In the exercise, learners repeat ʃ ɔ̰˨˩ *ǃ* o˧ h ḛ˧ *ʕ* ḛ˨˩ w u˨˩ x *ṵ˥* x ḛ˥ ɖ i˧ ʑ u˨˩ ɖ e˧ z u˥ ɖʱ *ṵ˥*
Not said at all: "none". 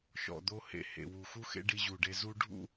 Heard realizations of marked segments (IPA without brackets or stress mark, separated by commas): d̪, h, u˥, ṵ˥